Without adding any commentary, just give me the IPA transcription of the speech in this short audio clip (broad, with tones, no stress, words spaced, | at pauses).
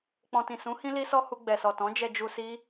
k͡pɔ̃˨tĩ˨ sũ˨˦ hĩ˦li˦sɔ˦hu˧ ɡ͡bɛ˨sɔ˨tɔ̃˨˦ d͡ʒɛ˧d͡ʒu˧si˦